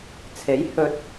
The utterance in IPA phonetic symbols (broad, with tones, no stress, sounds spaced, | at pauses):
t͡sʰ e˨˥ j h ɵ˧ t̚